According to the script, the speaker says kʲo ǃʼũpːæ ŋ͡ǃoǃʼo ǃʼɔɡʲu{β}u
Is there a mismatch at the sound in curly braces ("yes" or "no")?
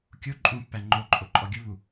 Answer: no